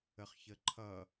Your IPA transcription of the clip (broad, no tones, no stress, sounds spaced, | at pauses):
ə χ ç ə ǃʰ ʌ